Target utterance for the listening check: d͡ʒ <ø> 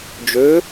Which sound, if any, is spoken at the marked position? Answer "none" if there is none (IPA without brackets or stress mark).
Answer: ø